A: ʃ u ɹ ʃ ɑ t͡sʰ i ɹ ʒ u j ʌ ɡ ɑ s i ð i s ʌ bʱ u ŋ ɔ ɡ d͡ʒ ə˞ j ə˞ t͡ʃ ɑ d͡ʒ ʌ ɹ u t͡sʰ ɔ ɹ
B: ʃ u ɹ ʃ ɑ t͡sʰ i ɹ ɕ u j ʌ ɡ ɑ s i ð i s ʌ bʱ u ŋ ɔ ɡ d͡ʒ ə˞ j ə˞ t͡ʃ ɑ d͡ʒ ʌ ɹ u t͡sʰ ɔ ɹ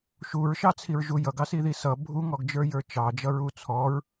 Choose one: A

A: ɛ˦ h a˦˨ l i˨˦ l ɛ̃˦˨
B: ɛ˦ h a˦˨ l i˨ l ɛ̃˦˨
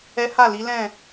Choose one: A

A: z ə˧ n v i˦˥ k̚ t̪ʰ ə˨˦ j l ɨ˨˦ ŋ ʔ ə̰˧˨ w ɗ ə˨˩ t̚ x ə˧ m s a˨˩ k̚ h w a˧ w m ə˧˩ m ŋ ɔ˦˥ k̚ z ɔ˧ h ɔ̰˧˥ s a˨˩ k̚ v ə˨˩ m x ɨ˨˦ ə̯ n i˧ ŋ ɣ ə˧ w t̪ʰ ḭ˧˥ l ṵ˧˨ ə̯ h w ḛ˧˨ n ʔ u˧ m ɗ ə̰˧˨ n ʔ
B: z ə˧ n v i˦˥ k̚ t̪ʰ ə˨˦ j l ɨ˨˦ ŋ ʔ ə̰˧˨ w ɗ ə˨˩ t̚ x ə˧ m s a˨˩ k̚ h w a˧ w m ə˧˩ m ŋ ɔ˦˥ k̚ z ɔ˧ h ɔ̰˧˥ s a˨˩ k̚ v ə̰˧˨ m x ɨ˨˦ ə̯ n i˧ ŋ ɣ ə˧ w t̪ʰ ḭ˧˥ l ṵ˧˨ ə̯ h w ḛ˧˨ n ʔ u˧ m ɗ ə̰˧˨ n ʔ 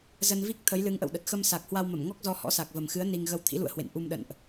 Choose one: A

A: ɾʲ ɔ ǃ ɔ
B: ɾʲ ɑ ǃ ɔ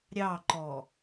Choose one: B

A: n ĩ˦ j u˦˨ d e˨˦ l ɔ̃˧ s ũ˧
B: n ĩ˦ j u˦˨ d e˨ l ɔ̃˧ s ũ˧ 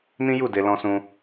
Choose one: B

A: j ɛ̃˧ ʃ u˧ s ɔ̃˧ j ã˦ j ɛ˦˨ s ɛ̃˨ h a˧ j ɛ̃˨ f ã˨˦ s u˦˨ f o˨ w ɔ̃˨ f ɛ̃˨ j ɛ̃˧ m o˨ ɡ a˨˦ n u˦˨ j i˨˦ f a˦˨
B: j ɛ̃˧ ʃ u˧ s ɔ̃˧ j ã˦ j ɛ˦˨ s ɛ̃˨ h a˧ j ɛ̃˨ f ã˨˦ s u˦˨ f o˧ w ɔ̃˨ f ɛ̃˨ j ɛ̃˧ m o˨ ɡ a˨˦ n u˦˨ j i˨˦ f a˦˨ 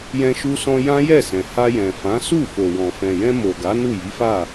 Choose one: A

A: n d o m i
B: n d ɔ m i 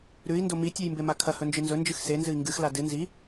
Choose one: A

